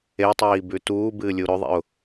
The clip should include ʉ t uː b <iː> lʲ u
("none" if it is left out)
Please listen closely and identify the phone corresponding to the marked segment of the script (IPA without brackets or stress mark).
ɨː